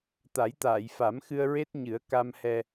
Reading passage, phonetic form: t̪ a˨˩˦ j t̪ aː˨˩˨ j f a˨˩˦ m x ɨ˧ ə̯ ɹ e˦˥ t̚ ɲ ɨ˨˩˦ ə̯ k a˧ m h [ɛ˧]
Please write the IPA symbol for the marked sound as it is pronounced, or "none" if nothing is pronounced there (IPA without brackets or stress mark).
ɛ˧